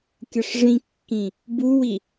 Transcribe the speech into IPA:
kʲʌʂʐĩkːĩ | buwi

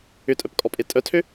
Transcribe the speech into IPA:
ʏtʼœpkʼɔpʼe tʼœtʰø

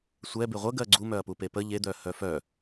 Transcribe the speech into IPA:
sʷɛ beʁʷə ɡɜɡ͡ǀu mœɐ̯pupepə ʎed̪œ hœfœ

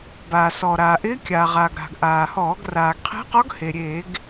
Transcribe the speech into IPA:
baː˩sɔ˩ɾaː˩ʔɪː˧˥ kʲa˩ʁa˩ɡ ɾa̤˩ɡʔaː˩hɔː˧˩˧ɡ raː˩ɡqʰi̤˧˥qɔ˧˥ɡhe˩ ɾʲe˧˩˧ɡ

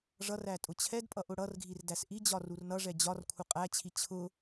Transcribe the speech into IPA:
ʐʌræ tʼʊt͡ɕʰɛdpʼʌʔ ʊɽʌrɡʱir dæsʔid͡ʑɒ rurnʌʐɛ d͡ʑɒrkʷʰə qʼæt͡ɕʰi t͡ɕʰʊ

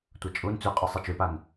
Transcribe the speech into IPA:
tʷɐt͡ʃʼun t͡sʉqʼɨ sˤit͡ʃʉpan

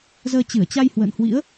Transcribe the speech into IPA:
zəː˧ t͡ɕɨ˧˩ə̯t͡ɕa˧j hwə̰ː˧˨nhwḭ˧˥ə̯

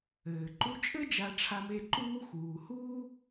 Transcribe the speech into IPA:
ɘː˩ǃu˦t͡ʃʼɘ˥ d͡ʒa˨ʈ͡ʂʰa˨me˨ ǃuː˦xuː˩huː˥

